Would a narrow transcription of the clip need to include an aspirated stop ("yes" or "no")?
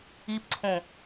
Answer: yes